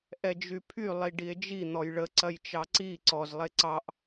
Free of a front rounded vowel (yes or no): no